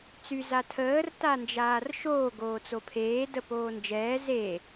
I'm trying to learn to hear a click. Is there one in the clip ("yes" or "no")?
no